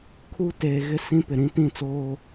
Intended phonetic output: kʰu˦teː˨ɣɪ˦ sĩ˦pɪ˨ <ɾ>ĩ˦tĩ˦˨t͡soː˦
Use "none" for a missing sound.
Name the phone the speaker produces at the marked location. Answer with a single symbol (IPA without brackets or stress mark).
ɾ